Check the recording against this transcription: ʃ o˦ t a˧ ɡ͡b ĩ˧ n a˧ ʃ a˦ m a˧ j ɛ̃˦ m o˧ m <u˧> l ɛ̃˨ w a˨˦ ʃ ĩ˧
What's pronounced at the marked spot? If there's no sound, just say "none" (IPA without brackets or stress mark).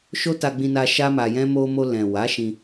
o˧